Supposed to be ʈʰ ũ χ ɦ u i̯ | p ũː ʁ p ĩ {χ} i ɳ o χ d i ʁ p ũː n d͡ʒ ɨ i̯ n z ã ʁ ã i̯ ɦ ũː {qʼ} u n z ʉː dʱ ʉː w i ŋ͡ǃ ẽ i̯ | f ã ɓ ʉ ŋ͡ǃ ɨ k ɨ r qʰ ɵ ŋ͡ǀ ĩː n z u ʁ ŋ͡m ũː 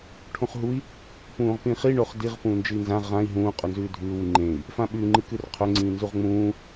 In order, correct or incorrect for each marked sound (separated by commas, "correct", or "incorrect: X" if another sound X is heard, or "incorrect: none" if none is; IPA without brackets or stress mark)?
correct, correct